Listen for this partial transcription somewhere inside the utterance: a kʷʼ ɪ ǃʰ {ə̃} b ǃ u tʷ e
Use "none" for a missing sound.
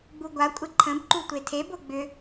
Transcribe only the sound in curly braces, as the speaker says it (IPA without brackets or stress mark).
ə̃